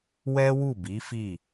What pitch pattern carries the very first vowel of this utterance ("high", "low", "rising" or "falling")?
high